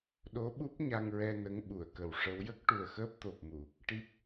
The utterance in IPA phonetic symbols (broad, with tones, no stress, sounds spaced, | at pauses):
ɗ o˧˥ ɓ u˦˥ p̚ ɲ a˧ ŋ ɹ ɛ˧ n ə˧˥ ŋ ɓ u˨˩˨ ə̯ k ə˨˩ w ʂ ə˧˥ w j ə˦˥ k̚ ʈ u˨˩ ə̯ x əː˦˥ p̚ t̪ o˨˩ p̚ m u˨˩˨ | ʈ i˦˥ p̚